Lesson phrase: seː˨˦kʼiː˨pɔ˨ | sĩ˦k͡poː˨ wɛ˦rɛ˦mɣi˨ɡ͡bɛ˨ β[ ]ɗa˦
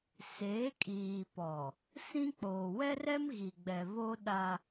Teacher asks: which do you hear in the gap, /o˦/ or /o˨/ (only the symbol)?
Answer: o˦